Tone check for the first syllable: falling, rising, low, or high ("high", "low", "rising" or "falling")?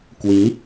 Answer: rising